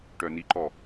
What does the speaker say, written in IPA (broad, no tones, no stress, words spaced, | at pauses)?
ʈœniǃɔ